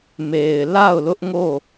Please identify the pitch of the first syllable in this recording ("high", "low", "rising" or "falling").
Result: low